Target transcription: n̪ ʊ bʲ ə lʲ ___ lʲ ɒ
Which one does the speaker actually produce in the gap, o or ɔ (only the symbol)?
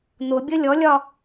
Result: ɔ